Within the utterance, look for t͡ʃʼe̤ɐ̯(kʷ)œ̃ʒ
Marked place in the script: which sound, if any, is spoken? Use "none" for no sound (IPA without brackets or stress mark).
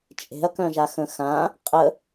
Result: k